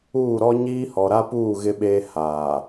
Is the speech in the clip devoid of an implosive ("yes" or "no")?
no